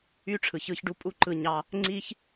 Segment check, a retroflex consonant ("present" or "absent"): present